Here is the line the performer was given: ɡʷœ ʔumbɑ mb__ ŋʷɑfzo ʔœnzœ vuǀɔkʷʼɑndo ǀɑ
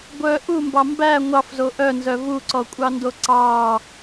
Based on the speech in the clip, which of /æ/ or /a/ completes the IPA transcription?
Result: æ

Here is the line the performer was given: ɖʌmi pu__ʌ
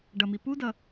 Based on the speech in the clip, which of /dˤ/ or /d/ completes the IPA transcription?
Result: d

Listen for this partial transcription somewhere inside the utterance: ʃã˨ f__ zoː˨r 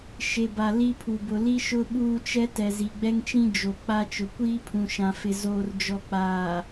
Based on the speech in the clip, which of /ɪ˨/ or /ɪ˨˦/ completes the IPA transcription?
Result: ɪ˨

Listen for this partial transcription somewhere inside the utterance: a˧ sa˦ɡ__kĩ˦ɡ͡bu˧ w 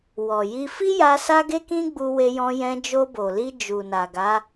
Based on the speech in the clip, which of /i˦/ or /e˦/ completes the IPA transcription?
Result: e˦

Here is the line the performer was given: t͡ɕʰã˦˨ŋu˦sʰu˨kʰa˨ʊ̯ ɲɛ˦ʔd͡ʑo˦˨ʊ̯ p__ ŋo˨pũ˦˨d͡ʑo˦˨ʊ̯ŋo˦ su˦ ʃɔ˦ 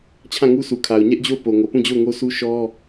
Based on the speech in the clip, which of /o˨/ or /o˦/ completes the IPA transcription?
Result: o˨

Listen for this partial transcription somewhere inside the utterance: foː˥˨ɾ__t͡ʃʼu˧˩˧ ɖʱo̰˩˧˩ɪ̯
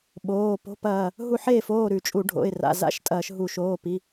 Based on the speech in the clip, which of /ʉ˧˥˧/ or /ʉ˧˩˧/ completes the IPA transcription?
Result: ʉ˧˩˧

